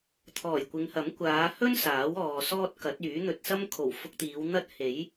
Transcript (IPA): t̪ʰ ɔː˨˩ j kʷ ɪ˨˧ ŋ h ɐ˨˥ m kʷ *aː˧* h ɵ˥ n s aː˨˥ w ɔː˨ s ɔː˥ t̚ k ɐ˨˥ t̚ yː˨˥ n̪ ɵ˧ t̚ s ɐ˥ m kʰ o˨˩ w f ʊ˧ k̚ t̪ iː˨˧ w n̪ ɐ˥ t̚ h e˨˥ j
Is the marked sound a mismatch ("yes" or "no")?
yes